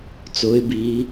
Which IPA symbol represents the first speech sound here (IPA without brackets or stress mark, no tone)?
t͡s